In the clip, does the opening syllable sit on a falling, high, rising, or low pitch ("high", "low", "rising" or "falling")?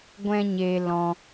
high